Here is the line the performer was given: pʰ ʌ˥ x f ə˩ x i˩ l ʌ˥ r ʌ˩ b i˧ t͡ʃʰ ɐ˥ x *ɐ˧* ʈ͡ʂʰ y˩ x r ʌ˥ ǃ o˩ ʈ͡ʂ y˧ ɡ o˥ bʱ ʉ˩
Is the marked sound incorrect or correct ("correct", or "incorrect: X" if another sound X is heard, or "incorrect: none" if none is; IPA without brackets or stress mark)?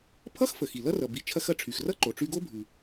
correct